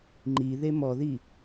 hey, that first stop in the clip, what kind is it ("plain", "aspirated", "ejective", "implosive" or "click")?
click